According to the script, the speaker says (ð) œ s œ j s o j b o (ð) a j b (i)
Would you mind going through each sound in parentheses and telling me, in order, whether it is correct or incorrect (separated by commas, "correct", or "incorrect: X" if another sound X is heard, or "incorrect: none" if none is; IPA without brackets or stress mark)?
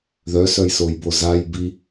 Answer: correct, incorrect: z, correct